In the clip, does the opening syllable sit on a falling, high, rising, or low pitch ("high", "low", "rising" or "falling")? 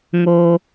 high